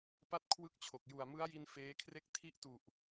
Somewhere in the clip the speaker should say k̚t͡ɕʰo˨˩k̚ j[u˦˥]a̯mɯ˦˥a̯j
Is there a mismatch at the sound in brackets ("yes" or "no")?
yes